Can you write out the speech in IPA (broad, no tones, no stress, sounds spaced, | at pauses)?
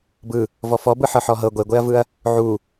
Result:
b ɯ | v ɔ f ɔ b ɯ ħ ɤ ħ ɔ ɦ ɤ ɡʷ e ɡʷ e ɐ̯ v ɯ ɐ̯ | ʕ u